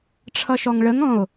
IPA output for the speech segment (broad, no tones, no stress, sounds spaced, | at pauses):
ʈ͡ʂʰ ʌ ʃ ɔ ŋ ɭ ə ŋ ɔ̃ o̯